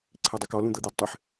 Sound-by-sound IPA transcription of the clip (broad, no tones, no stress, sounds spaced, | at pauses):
ǀʰ e dˤ ɘ k ɔ l ũ d̪ ɤ d̪ e d tˤ ɘ ħ